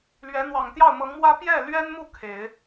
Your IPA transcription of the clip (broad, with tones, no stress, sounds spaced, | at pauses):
l ɥ ɛ˧˥ n̪ w ɑ˨˩ ŋ t̪ j ɑ˥˩ ʊ̯ m ɤ˧˥ ŋ m w ä˥ p j ɛ˥˩ l ɥ ɛ˥ n m u˥˩ kʰ e˨˩˦ ɪ̯